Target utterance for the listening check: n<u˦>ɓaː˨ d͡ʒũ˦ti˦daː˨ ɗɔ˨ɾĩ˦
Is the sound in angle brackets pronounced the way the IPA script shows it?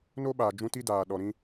no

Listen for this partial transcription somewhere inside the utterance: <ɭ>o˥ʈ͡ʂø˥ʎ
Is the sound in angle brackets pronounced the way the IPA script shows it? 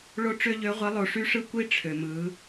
yes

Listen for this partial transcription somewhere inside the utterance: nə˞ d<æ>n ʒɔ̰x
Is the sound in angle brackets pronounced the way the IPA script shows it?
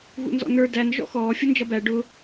yes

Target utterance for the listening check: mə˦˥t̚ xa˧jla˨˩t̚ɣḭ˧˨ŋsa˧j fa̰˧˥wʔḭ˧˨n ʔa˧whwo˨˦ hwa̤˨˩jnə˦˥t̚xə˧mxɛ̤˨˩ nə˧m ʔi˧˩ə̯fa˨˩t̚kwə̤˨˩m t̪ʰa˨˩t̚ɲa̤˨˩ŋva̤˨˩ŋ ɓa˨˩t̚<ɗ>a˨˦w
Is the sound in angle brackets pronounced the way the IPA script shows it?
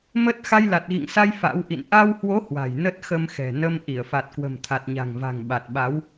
no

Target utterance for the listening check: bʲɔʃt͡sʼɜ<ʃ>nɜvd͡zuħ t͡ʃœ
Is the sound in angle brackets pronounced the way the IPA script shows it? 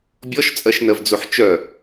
yes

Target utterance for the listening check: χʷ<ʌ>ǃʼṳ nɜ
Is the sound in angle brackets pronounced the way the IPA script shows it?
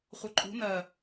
yes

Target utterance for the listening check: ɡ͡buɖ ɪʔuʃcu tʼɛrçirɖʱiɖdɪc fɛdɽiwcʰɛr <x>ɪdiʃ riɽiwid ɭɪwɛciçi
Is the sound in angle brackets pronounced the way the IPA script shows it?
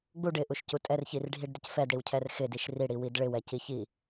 yes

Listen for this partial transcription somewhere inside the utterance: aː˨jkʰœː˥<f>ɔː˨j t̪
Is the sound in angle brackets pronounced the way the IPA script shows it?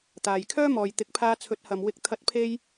no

